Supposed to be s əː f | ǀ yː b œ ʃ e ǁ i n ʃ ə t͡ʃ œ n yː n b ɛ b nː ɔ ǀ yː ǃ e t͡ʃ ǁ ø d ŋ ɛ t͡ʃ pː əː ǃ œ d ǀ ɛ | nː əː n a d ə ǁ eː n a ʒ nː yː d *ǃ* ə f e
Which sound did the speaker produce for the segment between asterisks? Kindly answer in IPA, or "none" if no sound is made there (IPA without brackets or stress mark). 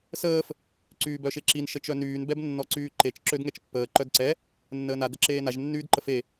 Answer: ǃ